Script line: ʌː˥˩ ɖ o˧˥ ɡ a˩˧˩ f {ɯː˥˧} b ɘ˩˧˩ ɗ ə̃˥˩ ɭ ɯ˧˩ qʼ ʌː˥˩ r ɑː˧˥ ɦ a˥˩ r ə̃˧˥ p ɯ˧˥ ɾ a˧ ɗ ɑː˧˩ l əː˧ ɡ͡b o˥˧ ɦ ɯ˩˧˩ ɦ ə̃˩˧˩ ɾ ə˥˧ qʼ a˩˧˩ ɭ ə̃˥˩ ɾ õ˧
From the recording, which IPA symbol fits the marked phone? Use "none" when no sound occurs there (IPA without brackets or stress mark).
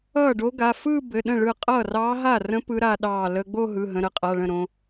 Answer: ɯː˥˧